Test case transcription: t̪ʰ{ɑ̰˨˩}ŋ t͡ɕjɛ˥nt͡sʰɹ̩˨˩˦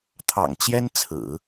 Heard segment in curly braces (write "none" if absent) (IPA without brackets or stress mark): ɑ̰˨˩